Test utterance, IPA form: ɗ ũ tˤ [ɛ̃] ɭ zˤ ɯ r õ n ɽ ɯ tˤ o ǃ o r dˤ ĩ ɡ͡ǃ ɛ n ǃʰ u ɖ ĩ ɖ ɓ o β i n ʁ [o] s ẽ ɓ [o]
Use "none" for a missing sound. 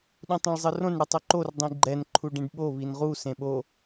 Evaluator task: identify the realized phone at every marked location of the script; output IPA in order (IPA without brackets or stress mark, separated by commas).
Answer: ɛ̃, u, o